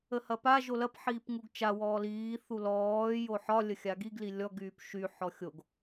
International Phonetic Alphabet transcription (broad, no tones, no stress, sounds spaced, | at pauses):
ə h ɐ p a ʒ o l ɐ p ħ iː p ŋ u ɡ t͡ʃ a w ɔː l iː θ u l ɔː j o ħ ɒ lʲ ə xʲ a ɡ i ɡ l i lʲ ɔ ɡ yː p ʃ y ħ ɔ xʲ o ɡ